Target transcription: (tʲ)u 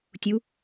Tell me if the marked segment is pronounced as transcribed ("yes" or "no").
yes